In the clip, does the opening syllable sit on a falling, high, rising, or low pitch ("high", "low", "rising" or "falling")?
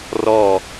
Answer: falling